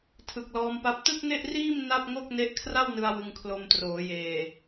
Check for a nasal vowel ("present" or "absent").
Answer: absent